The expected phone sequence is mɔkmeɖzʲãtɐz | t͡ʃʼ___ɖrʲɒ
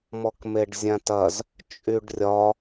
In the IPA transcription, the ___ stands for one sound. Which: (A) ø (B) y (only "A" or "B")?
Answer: B